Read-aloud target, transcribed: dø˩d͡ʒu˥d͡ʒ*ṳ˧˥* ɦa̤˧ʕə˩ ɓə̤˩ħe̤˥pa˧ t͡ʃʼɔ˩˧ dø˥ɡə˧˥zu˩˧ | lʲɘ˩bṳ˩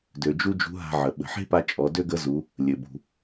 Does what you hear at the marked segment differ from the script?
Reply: no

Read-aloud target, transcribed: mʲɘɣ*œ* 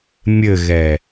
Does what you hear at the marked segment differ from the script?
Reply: yes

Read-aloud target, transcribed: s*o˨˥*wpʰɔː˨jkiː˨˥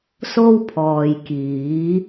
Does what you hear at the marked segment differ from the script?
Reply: yes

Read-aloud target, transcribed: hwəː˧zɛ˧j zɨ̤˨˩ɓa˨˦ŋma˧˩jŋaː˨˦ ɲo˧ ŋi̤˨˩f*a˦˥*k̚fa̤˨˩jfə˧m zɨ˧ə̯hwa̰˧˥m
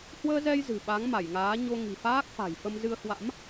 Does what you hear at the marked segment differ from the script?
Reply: yes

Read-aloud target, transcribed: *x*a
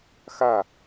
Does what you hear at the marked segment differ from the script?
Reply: no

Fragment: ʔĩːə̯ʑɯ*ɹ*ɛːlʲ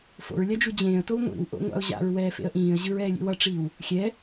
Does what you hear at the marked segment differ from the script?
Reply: no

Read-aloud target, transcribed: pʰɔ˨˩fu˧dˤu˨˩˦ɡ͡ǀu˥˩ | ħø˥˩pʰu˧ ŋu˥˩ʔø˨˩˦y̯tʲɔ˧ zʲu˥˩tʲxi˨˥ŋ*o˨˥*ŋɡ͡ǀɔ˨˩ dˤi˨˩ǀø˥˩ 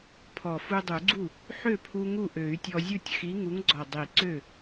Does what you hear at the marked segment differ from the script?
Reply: yes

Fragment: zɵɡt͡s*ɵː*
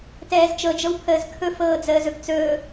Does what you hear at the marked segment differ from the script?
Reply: no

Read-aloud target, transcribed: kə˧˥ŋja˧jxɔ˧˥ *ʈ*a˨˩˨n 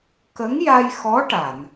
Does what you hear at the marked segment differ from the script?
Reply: no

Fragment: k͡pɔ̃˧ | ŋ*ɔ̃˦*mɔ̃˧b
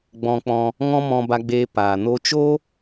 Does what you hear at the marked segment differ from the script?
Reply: no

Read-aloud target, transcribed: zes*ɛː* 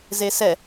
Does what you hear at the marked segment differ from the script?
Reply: yes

